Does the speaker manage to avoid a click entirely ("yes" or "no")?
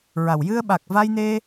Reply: yes